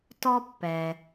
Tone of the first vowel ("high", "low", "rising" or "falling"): high